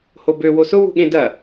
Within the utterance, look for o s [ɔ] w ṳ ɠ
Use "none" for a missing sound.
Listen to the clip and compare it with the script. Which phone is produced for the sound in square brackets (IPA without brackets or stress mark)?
ʊ